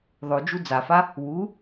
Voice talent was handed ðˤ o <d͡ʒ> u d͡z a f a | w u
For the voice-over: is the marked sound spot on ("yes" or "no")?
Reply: yes